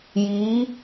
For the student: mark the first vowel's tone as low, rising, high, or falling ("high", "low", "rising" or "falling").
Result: rising